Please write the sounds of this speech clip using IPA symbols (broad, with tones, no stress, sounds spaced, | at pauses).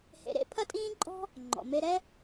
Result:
h ḛ˧ ɾ ḛ˥ pʰ ɐ˥ tʼ ĩː˥ ǃʼ ɔ̤˥ | ŋ͡ǃ ɔ̰˩ m e˧ ɾ ɛ˥